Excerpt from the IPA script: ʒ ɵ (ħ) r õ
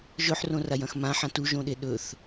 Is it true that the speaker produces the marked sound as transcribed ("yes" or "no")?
yes